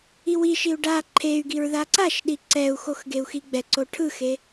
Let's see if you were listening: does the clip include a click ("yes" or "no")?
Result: yes